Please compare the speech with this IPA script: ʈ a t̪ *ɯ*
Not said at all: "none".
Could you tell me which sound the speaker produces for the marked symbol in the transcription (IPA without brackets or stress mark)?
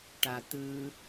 ɯ